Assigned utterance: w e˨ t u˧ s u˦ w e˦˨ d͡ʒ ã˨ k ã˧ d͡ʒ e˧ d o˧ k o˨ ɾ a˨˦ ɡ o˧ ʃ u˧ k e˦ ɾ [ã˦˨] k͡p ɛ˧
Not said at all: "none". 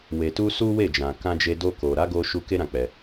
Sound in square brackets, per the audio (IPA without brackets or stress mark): ã˦˨